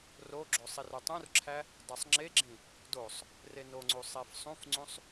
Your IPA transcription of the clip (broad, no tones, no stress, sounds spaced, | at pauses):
r o ɡ͡ǁ o sˤ i r u tˤ ũ r ǁʰ æ | dˤ ɯ sˤ ŋ͡ǁ e ɡ͡ǁ ĩ | d o sˤ | r e n o ŋ͡ǀ u sˤ e f sˤ ũ f ŋ͡ǀ ũ sˤ